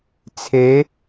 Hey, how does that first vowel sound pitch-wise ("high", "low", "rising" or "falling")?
rising